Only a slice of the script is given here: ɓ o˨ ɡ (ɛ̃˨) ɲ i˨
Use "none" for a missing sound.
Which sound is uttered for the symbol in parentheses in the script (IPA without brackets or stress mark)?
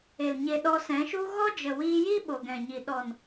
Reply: ɛ̃˨